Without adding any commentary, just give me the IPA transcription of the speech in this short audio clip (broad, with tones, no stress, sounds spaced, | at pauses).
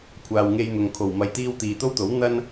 kʷʰ aː˨ w ŋ e˧ j n̪ ʊ˨ ŋ kʰ o˨˩ w m ɐ˨ j t̪ iː˧ w t̪ iː˨ t̪ o˥ w t̪ o˨˥ w n̪ ɐ˥ n